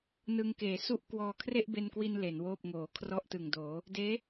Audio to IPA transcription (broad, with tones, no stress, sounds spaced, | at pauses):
n ɯ˧ ŋ k eː˩˦ s u˥˩ ʔ k w ɔː˧ kʰ r e˥˩ ʔ b e˧ n k w i˧ n l e˩˦ n w oː˥˩ p̚ ŋ oː˩˦ kʰ r ɔ˥˩ ʔ t ɯ˨˩ ŋ d oː˩˦ | d eː˦˥